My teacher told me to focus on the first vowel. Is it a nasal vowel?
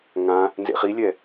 yes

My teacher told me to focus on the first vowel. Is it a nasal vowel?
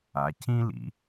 no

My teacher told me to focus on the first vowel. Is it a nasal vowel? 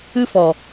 no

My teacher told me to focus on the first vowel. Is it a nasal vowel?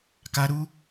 no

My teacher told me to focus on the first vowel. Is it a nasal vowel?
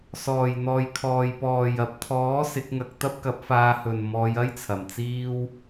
no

